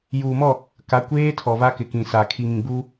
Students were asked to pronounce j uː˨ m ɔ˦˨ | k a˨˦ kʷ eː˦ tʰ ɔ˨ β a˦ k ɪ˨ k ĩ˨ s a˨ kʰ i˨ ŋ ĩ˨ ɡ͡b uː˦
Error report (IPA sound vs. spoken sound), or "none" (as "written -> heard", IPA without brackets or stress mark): none